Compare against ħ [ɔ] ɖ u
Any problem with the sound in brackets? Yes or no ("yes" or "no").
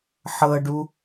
yes